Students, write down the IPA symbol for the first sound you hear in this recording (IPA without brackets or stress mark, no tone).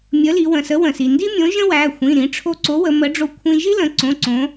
mʲ